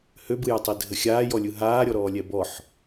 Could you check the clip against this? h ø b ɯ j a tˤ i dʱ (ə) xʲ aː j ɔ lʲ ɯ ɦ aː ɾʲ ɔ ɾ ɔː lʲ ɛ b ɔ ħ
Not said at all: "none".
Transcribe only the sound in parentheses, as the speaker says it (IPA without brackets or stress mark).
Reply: ə